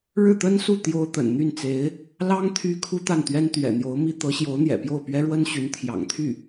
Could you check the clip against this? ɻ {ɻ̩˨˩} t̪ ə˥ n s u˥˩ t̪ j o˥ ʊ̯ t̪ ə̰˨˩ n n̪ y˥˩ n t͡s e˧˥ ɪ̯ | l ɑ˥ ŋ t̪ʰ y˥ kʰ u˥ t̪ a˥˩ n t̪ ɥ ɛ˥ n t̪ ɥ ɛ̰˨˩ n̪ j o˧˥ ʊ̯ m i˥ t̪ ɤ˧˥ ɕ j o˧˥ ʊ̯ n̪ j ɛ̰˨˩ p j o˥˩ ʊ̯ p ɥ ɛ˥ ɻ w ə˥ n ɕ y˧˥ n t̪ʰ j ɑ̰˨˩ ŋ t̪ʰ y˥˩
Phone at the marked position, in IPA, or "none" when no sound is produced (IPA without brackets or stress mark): ɻ̩˥˩